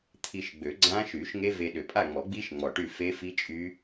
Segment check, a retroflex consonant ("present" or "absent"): present